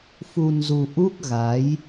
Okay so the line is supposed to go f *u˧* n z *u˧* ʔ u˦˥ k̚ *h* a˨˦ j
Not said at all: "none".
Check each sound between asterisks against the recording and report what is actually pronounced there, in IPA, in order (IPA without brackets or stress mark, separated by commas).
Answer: u˧, u˧, ɣ